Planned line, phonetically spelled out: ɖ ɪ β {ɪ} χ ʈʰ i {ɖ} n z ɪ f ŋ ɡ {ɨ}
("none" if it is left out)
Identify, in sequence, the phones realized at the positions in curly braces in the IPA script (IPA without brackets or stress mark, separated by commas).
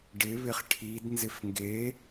ɪ, d, e